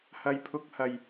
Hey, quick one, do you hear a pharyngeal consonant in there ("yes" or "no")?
no